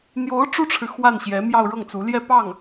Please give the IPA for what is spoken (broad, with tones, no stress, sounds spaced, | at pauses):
n̪ j o˧˥ ʊ̯ ʈ͡ʂ u˥ ʈ͡ʂʰ ɻ̩˨ x w a˥˩ n ɕ j ɛ˧˥ m j ɑ˥˧ ʊ̯ ɻ ɤ˥˩ ŋ t͡s u˧˥ l j ɛ˥˧ p ɑ˥˩ ŋ